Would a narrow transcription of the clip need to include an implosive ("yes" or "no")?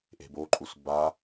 no